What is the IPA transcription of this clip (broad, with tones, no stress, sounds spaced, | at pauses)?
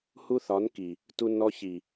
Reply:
h u˦ θ ɒ˨˦ n k i˨ | t u˦ n ɔ˦ ç i˨